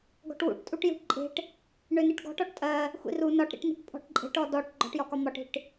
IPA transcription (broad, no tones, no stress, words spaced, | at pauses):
ɡɔ̤ʈwṵʈtʼuʈ jṳʈǃʼe̤ʈ | ɳøniʈɡɔ̤ʈɔʈ tʼɜ | xʷḭru nɒʈɾḭʈni̤ʈ pʼɔ̤ʈǃʼe̤ʈɔ dɔʈ ɡ͡ǃɔ̤ʈjɒkɒ mɒʈi̤ʈ